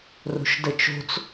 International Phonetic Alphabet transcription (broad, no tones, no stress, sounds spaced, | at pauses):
r o̤ ʃ d ə t͡ʃ o̤ t͡s